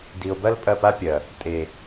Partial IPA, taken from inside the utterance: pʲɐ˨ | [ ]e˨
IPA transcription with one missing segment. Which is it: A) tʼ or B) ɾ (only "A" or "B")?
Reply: A